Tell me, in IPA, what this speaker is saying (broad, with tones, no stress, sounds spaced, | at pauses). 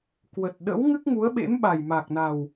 k w ə˨˩ t̚ ɗ ə̰˧˥ w ŋ ɨ˦˥ k̚ ŋ u˨˦ ə̯ ɓ ḛ˧˥ m ɓ a˨˩ j m a˨˩ k̚ n a˨˩ w